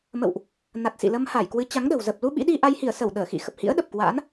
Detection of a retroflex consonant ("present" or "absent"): absent